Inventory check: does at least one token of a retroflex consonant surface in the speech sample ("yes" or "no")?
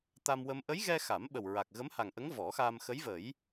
no